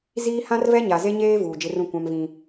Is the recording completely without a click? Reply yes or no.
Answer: yes